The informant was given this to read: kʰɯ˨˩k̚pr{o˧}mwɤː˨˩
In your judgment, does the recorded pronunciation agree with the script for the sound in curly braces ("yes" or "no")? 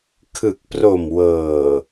no